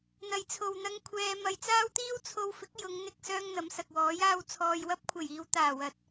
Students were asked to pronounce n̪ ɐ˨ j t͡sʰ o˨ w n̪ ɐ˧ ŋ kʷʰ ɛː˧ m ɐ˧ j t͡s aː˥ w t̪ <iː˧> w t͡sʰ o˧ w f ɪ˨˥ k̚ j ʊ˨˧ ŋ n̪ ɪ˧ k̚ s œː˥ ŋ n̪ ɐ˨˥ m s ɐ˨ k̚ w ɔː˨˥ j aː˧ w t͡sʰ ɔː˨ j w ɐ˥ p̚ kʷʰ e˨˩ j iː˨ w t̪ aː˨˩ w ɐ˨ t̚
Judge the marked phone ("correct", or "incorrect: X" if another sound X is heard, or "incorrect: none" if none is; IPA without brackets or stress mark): incorrect: iː˥